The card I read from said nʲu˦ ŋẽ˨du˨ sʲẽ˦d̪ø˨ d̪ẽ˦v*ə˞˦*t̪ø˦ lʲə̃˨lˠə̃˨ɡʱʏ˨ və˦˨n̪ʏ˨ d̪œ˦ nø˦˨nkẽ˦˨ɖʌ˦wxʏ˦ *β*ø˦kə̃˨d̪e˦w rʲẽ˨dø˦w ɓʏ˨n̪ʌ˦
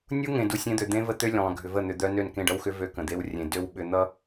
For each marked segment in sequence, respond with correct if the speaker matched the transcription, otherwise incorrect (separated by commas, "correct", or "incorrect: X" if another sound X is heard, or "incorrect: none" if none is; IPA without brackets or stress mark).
incorrect: ə˦, incorrect: v